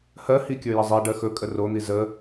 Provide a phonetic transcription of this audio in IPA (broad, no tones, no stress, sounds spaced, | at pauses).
h ɜ h i kʲ ə˞ j ə zˤ i ɖ ɜ x ɵ kʼ ə r o n̪ i z ə